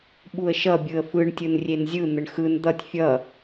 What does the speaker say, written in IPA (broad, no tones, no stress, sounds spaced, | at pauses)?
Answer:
ɓ u ə̯ ʃ ʌ bʲ ɯ ə̯ f ɯ ɳ tʲ ɯ n rʲ e n zʲ ɯ n̪ ə ɳ x ɯ n d̪ ʌ tʲ fʲ ʌ